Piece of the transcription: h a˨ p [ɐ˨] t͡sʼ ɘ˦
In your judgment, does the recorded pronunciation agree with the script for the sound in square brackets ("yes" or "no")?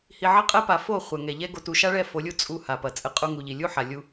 yes